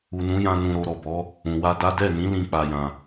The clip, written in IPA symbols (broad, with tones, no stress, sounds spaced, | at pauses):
u˨ n ũ˨˦ j ã˧ n ũ˧ ɾ o˧ ɾ ɔ˨ b ɔ˨˦ | ũ˨ w a˧ d a˦ d ɛ˦˨ n ĩ˨˦ l ĩ˧ k͡p a˧ j ã˧